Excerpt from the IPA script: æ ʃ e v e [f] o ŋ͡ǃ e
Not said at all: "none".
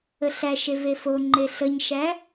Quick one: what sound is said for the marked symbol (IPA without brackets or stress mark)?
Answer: f